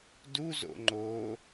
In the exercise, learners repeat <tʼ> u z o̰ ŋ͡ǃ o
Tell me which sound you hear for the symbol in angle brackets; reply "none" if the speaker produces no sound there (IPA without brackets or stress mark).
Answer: d